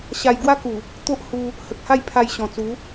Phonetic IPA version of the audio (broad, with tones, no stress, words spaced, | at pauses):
ɕa˧j ɡwa˦ku˨˩ | t̪o˦ʔhu˧ | hə˨k̚ha˥˧j pʰa˧jɕɔ̃˨˩ t͡su˨˦